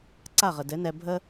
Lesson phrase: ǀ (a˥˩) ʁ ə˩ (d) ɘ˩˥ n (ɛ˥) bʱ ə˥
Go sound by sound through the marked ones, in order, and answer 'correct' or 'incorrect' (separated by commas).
correct, correct, incorrect